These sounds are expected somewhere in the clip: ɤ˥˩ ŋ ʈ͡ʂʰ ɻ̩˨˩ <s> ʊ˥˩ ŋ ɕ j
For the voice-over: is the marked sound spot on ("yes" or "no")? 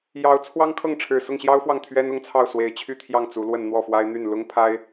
yes